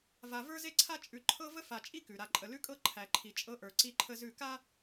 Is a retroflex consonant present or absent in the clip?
absent